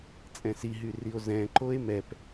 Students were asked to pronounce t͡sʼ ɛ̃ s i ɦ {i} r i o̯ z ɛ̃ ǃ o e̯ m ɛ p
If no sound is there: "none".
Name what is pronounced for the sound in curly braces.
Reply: y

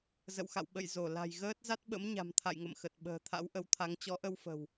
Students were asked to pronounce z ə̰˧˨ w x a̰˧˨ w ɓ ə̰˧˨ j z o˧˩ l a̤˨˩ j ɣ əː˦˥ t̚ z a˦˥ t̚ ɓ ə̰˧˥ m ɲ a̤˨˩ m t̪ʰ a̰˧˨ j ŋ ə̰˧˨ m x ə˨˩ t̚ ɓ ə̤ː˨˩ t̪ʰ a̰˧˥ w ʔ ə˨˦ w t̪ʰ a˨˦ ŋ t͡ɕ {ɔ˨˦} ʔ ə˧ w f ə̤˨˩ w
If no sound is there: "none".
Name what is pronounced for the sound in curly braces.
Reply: ɔ˨˦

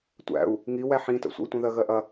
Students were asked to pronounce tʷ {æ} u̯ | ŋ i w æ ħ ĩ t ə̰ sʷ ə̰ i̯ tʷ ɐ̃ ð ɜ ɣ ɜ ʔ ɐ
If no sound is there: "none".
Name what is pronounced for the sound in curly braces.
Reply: æ̰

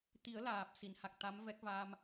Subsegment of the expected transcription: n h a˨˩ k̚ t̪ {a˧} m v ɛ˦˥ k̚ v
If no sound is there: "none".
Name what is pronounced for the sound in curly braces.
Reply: a˧˥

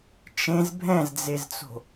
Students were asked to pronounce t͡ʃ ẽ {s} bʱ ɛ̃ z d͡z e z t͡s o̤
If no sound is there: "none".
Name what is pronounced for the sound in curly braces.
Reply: z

